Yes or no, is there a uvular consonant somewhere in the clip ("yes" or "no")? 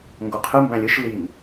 yes